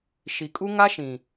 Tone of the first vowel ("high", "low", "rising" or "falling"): low